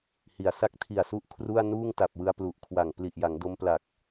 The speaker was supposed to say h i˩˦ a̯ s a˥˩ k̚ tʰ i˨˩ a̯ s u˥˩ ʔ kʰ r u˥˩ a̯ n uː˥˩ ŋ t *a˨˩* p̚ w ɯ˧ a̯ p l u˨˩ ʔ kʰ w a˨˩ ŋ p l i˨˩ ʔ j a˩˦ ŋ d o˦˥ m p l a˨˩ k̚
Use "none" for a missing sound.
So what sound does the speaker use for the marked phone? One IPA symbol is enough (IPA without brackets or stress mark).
a˨˩